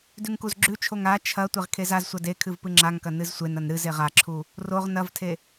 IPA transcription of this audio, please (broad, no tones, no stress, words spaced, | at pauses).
dʉŋkuzɡ͡ǁʉt͡ʃʰoŋ a t͡ʃʰɐ tʷeʁkʰezazsʷɐ dekʰɨv pɨŋ͡ǁaŋkɐ nɨzsʷenɐn ɾɨzeʁ aǁʰu | roʁ nɐvtʰe